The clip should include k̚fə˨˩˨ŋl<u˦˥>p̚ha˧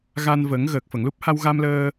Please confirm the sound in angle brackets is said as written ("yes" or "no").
yes